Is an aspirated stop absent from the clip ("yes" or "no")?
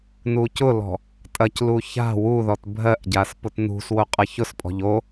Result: yes